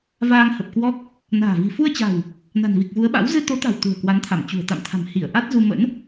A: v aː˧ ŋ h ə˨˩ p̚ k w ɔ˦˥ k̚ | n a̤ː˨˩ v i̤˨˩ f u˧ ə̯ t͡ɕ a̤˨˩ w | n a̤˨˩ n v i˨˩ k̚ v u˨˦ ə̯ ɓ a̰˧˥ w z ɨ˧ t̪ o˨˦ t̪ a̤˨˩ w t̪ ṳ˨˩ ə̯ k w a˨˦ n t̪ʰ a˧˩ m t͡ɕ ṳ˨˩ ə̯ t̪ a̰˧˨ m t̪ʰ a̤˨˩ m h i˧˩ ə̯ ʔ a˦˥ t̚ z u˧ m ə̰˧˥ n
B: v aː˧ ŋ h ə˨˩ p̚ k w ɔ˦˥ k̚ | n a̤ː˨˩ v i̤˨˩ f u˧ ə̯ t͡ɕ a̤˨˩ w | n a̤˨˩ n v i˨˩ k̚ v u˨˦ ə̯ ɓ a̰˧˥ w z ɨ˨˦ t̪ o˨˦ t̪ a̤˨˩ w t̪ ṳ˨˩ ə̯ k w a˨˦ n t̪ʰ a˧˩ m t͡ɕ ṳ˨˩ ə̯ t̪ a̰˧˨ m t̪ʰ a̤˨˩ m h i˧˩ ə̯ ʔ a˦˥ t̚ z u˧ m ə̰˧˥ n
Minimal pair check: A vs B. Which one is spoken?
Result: A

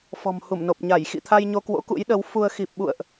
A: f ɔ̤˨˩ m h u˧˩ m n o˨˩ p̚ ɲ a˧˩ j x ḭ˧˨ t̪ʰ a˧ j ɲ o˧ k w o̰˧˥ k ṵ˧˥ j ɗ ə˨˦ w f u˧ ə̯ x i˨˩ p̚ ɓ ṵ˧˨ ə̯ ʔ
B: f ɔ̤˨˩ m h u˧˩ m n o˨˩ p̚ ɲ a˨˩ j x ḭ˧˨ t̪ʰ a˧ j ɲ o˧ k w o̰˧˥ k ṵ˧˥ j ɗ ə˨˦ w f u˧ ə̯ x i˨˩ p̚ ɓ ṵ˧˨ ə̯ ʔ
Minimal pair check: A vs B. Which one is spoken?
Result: A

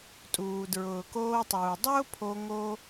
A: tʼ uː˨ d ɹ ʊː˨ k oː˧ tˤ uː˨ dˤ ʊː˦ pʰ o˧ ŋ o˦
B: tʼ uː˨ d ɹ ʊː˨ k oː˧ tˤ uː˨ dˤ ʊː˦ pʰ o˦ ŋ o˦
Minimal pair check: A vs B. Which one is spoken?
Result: A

